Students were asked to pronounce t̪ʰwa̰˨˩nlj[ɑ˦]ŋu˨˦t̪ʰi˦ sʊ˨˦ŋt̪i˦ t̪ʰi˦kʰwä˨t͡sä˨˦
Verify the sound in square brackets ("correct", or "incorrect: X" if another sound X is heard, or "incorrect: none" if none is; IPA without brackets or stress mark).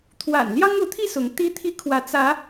correct